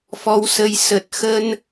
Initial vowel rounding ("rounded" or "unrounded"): rounded